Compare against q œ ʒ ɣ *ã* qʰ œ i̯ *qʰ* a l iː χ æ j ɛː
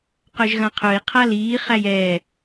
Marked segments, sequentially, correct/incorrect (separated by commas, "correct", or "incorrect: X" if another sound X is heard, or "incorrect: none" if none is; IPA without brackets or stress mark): correct, correct